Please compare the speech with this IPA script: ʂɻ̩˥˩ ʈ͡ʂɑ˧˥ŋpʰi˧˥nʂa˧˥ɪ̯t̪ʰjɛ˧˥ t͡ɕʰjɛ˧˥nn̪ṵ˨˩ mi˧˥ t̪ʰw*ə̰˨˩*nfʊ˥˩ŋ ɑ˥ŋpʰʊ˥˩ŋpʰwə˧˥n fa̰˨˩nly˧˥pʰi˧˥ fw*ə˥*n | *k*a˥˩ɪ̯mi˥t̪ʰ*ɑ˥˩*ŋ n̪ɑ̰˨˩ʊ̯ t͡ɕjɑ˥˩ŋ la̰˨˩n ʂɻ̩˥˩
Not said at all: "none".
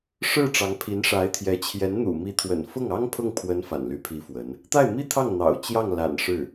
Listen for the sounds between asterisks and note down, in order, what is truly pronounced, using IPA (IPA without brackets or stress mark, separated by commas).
ə̰˨˩, ə˧˥, t̪, ɑ˥˩